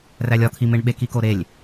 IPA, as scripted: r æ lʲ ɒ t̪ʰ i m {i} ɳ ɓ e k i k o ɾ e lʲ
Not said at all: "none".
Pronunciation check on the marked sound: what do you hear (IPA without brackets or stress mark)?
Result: e